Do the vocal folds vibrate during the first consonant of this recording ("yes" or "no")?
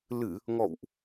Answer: yes